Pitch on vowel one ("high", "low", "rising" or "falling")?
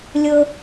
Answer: low